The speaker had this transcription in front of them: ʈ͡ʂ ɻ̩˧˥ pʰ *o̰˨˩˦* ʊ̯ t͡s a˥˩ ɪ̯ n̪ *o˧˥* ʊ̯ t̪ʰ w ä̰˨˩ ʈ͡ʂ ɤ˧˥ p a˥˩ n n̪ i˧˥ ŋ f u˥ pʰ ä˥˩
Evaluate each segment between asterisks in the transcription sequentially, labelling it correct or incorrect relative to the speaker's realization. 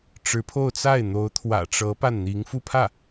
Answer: incorrect, correct

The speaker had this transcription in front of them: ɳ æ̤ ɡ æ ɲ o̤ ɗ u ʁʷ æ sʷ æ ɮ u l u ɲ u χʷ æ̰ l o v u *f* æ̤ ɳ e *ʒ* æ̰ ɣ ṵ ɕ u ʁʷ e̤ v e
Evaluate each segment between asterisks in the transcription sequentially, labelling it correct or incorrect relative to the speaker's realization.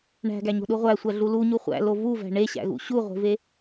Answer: incorrect, incorrect

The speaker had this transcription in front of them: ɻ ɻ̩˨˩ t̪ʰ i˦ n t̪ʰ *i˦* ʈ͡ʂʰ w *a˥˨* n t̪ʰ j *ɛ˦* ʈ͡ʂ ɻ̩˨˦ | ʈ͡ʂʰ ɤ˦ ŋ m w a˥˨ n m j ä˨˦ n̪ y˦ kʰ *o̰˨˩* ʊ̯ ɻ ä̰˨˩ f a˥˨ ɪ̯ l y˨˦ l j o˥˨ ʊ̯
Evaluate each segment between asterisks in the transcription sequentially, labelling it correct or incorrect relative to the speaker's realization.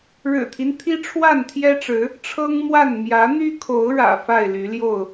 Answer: correct, correct, correct, incorrect

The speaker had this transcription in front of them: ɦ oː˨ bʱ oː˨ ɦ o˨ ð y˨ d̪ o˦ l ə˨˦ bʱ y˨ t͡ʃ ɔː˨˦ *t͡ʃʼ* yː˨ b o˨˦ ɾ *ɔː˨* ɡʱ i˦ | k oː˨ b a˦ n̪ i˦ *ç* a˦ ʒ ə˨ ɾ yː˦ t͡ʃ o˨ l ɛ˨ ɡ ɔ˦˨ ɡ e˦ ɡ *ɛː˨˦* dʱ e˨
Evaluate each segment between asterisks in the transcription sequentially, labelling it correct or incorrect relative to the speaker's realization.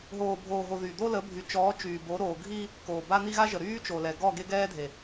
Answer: incorrect, incorrect, incorrect, incorrect

